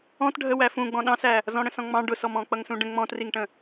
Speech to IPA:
ɔ̃ t ɖʱ ə w æ f ũ ɡ͡b ɔ̃ ɗ ɑ̃ s æ | z ɔ̃ ɽ ə̃ s ɔ̃ ŋ͡m ɑ̃ ɖ ʊ s ɔ m ɔ̃ k͡p ʌ ŋ s ũ ɖ ə̃ ŋ͡m ɔ̃ t r i ŋ ʈ ə̃

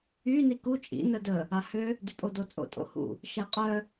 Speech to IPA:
y n i k u t͡ʃʼ ḭ n ə d ə | a h ø | d y pʼ o d o t͡sʼ o̰ tʼ o̰ h ṵ | ʃ ɛ qʼ œ

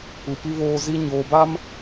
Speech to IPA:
u˨ p i˦ β oː˦ z i˦ ɲ oː˨ b a˦ m

